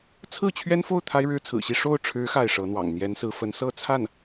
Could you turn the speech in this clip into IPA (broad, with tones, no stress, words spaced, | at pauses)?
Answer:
t͡sʰɹ̩˥˩t͡ɕʰɥɛ˥nfo˥˩ʊ̯ t̪ʰa˥ɪ̯ɻɻ̩˥t͡sʰɹ̩˨˩ɕi˥˧ ʂo˥˩ʊ̯ʈ͡ʂʰɻ̩˧˥ xa˥˩ɪ̯ʂɤ˧˥n̪wɑ̰˨˩ŋ n̪jɛ˧˥nsɹ̩˧˥fə˧˥n sɤ˥˧t͡sʰa˥˩n